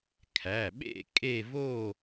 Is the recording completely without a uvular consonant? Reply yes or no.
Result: yes